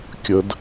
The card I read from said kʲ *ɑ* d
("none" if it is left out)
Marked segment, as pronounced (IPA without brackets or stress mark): ə